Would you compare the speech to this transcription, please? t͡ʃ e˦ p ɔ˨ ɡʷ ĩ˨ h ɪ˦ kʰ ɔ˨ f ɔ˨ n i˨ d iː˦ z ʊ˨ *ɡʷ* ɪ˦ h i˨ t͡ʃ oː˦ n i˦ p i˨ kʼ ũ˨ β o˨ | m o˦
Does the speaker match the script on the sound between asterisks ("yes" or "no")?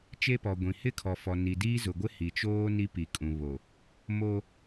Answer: yes